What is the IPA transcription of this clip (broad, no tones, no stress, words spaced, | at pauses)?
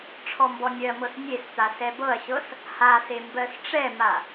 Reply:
ʈ͡ʂʰɔmbɔnʲɜmɤs nʲest̪a sɛbɤɐ̯ɕɤs | hase mbɜsʈ͡ʂɛma